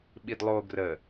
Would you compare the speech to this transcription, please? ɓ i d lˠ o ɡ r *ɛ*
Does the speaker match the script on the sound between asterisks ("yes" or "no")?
no